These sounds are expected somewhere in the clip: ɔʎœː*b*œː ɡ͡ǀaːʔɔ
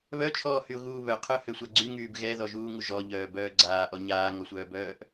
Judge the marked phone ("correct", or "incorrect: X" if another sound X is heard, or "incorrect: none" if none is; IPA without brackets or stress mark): correct